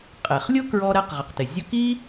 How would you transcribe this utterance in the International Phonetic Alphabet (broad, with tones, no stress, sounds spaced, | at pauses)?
qʼ e˩ χ lʲ ʊ˥ k ɹ ɔ˧ ɾ ɛ˧ q ʁ ɪ˩ q t ɪ˩ zʲ ʊ˧ k i˥